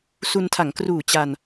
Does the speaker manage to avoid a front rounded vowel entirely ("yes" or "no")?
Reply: yes